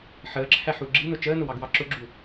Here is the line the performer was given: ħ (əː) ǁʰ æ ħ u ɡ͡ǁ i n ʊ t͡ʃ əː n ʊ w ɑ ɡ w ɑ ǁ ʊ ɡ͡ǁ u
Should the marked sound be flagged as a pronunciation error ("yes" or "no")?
no